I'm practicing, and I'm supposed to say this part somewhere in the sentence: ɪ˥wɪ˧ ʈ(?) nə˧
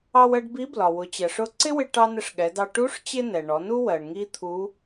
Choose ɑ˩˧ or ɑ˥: ɑ˥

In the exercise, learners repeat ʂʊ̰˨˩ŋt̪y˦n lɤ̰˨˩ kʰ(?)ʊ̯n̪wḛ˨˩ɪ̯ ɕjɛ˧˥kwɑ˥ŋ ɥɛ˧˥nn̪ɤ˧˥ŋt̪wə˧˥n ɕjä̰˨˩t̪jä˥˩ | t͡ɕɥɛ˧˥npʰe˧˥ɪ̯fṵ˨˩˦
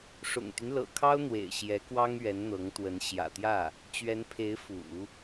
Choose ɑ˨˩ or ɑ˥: ɑ˥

